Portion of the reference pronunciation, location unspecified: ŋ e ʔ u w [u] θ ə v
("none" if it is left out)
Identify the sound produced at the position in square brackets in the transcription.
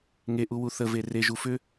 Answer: u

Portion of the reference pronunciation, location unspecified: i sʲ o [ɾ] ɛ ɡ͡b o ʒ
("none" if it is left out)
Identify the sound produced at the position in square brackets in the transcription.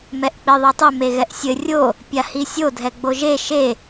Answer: dʱ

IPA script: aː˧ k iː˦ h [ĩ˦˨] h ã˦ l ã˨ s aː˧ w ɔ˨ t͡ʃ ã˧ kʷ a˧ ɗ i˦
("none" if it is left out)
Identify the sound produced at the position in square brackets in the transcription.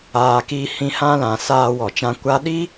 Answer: ĩ˧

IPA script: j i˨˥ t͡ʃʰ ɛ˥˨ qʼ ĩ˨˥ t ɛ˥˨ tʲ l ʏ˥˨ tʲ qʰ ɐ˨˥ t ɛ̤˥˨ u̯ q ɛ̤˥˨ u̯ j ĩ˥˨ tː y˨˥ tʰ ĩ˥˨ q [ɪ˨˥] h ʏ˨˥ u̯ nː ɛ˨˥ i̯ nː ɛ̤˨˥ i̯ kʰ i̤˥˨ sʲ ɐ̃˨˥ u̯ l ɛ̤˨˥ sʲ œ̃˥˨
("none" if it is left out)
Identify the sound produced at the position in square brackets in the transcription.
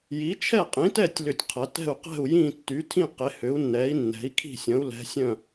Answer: ɪ˨˥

